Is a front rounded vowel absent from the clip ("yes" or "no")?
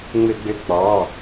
no